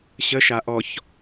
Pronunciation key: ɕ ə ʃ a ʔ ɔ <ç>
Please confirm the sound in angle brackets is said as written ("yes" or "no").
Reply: yes